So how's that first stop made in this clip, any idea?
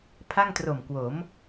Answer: aspirated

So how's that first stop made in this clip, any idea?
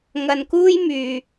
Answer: plain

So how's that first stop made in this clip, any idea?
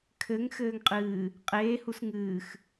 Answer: aspirated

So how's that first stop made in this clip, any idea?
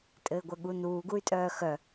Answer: ejective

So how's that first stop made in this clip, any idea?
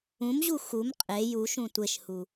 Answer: ejective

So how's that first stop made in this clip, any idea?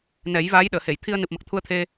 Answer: implosive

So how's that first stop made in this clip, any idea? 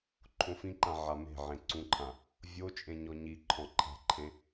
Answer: click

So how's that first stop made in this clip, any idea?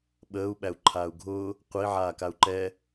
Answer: implosive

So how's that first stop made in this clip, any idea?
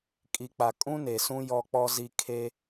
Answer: ejective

